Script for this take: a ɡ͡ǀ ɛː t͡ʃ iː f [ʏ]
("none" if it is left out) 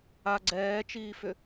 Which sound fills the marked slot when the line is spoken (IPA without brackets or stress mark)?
ʏ